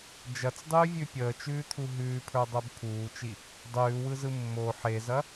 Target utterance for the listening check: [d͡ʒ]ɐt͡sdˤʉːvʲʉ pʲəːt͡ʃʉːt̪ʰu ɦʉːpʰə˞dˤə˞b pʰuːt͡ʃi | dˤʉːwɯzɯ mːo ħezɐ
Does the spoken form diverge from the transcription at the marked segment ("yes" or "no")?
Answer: no